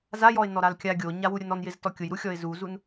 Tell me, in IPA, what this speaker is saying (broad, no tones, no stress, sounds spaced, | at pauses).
z a j ɔ ɪ̯ n ɔ ɾ a l kʲ a ɡʲ o ɲ a w u ɾʲ ʊ n ɔ n j ɪ z t ɔ kʲ ʊ j ɾ u xʲ ɔ ɪ̯ z u z u n